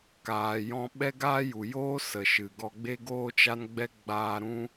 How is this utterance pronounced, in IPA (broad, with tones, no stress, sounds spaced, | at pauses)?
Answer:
k aː˨ j ɔ̃˧ ɓ ɛ˦ ɡ aː˦ j u˨ j oː˦ s ə˨ ʃ ɨ˨ ɡ ɔ˧ ɡ͡b e˧ ɡ oː˧ t͡ʃ a˧ n ɡ͡b ɛ˧ ɡ͡b aː˧ ɾ ũ˧